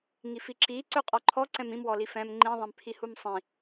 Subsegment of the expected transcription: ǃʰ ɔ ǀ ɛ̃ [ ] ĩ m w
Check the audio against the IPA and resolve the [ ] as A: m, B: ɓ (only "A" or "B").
A